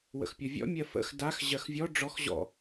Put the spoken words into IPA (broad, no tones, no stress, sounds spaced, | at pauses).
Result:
w ə̰ x pʲ ɔ vʲ ɔ̰ mʲ ɜ f ə̰ x d a x ʑ ɜ x vʲ ɔ ɖ͡ʐ ɔ x ʑ ɔ̰